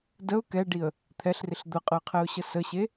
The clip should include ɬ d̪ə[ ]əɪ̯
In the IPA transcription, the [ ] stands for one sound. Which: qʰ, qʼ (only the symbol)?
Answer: qʼ